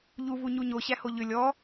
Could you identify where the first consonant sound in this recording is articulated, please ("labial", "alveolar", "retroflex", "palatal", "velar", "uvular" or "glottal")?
palatal